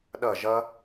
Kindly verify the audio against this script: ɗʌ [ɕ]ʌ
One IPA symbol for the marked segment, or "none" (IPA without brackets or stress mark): ʒ